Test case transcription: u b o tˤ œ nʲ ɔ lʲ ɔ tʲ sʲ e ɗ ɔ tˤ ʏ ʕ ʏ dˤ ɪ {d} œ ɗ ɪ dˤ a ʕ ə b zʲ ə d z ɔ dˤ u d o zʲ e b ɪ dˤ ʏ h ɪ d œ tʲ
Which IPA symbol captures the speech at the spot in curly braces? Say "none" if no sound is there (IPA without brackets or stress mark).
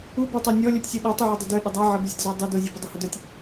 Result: d